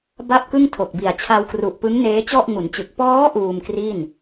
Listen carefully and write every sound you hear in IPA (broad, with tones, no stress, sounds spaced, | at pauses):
b a˥˩ p̚ k ɯ˥˩ ŋ tʰ o˨˩ k̚ b i˨˩ a̯ t͡ɕʰ a˧ w k r u˨˩ ʔ p ɯ˦˥ ŋ n eː˦˥ t͡ɕ ɔ˥˩ ʔ ŋ u˩˦ n t͡ɕ ɯ˨˩ k̚ p ɔː˦˥ ʔ uː˧ m k r i˥˩ n